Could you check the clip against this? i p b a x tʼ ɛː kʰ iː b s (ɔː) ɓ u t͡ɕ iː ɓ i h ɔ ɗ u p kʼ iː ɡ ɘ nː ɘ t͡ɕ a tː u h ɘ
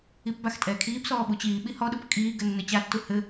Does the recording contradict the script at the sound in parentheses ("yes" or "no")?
no